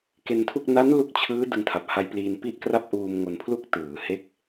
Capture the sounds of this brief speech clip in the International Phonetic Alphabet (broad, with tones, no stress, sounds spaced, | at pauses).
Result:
k e˧ n tʰ u˥˩ k̚ n a˦˥ n l u˦˥ k̚ t͡ɕʰ ɯː˦˥ d ɯ˧ ŋ tʰ a˨˩ p̚ h a˧ j p l iː˧ n p i˥˩ ʔ k r a˥˩ p̚ ʔ uː˧ m ŋ o˧ n pʰ l u˥˩ k̚ t ɯː˩˦ h e˦˥ k̚